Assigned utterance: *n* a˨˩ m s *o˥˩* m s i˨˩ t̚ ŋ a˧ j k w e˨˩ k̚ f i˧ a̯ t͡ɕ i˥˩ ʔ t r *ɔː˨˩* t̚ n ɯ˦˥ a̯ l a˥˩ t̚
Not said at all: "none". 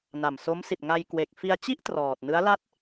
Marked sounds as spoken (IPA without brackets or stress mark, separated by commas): n, o˦˥, ɔː˨˩